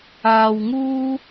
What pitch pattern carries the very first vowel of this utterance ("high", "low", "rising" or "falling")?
low